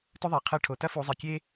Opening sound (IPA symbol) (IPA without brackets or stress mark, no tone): t